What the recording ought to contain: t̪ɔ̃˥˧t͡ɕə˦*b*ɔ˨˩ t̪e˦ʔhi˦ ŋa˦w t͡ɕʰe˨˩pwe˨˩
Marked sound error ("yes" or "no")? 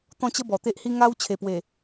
no